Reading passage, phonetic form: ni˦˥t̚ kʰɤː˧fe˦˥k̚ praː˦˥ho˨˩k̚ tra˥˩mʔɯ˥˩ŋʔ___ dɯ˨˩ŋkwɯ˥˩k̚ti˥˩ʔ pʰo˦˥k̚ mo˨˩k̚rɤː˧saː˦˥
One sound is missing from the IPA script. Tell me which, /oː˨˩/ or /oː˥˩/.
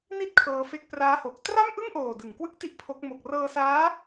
oː˨˩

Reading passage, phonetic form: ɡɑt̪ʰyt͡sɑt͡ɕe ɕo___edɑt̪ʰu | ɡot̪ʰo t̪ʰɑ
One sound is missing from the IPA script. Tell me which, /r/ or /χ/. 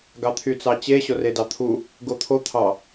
r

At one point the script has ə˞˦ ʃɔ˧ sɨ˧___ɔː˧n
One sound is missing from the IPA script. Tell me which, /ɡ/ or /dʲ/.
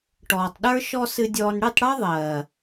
dʲ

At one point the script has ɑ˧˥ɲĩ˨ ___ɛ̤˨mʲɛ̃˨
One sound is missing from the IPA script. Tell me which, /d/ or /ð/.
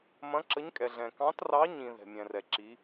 ð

